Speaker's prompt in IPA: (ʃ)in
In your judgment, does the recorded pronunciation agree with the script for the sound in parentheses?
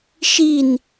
yes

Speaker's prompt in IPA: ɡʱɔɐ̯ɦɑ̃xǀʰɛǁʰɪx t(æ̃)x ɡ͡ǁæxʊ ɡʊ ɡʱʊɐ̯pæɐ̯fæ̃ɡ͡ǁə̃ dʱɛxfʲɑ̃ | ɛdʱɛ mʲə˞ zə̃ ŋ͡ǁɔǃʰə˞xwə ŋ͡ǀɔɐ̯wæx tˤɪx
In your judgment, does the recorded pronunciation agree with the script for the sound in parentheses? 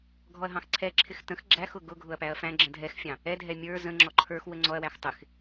no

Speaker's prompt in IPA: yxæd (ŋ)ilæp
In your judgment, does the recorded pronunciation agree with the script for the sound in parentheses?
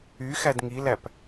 yes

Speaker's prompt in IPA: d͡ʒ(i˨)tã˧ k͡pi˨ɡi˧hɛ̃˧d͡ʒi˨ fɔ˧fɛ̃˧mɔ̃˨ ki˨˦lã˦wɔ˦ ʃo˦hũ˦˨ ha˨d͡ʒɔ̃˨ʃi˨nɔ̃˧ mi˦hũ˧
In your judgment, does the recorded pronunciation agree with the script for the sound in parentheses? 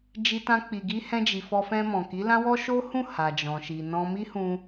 no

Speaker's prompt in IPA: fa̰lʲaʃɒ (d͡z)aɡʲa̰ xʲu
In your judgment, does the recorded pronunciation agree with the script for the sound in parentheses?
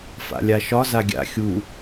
no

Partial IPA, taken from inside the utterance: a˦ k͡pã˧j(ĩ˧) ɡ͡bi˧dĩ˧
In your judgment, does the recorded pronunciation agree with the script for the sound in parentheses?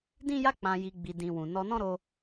no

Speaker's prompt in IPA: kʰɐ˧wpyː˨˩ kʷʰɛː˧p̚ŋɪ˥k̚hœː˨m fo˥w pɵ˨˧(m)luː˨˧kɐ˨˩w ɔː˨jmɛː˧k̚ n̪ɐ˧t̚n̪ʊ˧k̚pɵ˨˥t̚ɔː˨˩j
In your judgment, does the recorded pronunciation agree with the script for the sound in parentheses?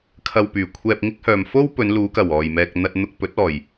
no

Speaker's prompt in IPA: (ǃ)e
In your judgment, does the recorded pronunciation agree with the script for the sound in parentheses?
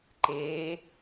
yes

